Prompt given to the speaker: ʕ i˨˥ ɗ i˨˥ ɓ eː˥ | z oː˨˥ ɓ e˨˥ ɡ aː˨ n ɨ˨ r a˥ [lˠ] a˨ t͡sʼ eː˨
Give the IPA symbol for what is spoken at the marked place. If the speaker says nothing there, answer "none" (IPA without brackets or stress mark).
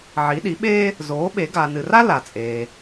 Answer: l